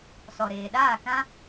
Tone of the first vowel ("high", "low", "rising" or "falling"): low